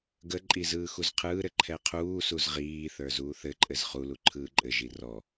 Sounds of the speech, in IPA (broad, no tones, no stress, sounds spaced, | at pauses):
ɡ ə ǃʼ i z ɯː x u z qʰ ɯː ɾ ɘ ǃʰ ɛ qʰ uː s u z ʁ iː θ ə˞ z uː θ ɘ ǃʼ ɘ z χ u l u ǃʰ ɯː ǃʼ ɘ ʒ i r ɔ